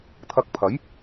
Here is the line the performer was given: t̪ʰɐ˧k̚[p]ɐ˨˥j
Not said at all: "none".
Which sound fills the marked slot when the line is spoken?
pʰ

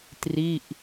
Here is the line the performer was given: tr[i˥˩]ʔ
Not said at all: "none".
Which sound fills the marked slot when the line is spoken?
i˥˩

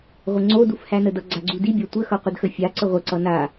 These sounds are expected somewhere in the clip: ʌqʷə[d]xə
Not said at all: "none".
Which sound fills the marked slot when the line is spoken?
d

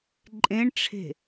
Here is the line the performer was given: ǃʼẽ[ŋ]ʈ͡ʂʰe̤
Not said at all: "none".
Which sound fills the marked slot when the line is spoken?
ɳ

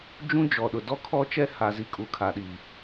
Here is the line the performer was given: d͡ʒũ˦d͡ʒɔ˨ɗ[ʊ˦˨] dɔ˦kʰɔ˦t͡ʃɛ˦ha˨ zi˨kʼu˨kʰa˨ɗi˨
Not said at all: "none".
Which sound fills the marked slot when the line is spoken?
ʊ˨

